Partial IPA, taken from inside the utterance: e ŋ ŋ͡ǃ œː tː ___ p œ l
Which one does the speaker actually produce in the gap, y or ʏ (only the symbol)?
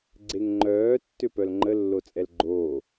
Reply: ʏ